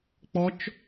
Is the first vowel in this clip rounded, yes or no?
yes